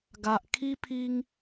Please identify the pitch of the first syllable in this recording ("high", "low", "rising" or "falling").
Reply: low